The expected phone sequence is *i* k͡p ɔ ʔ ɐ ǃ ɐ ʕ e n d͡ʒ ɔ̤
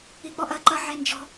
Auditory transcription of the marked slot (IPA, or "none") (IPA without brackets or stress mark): i